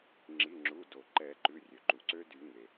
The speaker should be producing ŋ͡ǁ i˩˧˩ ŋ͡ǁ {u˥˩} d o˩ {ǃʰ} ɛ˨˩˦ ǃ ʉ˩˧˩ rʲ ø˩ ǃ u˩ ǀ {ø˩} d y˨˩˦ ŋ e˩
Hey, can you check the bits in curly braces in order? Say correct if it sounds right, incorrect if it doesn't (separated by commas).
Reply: incorrect, incorrect, incorrect